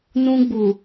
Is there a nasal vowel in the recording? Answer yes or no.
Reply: yes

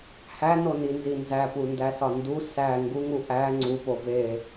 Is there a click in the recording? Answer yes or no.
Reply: yes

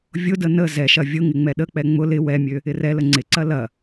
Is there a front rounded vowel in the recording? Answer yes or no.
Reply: yes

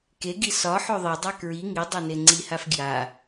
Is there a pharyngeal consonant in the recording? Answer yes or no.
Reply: yes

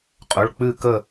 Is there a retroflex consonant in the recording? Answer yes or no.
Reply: yes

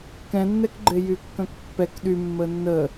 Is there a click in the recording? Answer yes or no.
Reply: yes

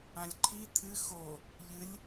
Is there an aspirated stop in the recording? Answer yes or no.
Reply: yes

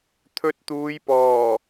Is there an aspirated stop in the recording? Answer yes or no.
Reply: yes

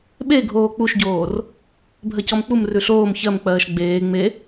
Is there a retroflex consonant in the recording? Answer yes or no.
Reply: no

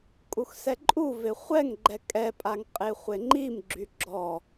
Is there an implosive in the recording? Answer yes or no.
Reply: no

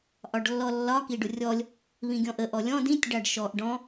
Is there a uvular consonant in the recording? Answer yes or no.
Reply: no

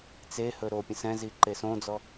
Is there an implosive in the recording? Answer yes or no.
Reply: no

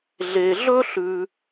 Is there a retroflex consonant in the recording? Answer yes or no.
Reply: no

